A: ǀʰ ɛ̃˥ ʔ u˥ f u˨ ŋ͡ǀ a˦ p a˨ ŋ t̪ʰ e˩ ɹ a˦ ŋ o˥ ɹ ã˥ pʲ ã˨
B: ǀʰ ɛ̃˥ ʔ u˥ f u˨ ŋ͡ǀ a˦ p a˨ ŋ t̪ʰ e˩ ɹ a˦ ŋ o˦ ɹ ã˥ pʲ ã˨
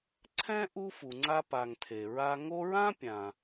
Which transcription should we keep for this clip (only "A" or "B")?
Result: B